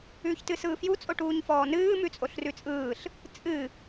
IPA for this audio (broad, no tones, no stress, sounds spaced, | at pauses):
ʉː ç t ɨ s ɯː f j u t͡sʼ o ʈ uː ɲ f ɔː n ɨː m ʉ t͡sʼ o ɬ r ʉ t͡sʼ ɯː ɬ | t͡sʼ ɨ